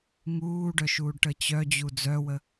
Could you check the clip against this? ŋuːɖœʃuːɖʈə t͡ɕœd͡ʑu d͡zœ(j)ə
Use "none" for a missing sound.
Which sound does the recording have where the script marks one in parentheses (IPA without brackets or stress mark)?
w